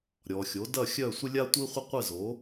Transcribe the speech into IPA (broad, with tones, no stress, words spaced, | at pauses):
ɾʲɔ˨xʲo˩˥dɐ˥˨xʲœ˥˨ sʷɪ˥lʲa˥tʷi˥χʷɪ˥ qʷɪ˥˨zo˩˥